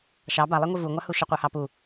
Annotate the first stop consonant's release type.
plain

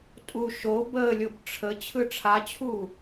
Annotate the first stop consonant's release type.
ejective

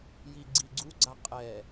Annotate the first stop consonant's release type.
click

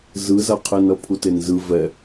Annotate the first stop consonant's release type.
aspirated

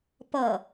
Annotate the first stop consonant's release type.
plain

